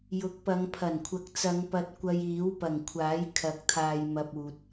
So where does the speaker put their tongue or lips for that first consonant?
palate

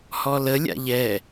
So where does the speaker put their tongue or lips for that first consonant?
throat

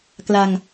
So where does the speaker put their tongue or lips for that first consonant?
velum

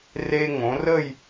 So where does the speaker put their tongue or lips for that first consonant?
tongue tip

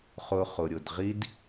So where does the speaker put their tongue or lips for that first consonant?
uvula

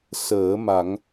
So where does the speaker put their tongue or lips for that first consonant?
tongue tip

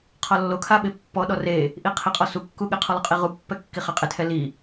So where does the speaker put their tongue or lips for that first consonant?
uvula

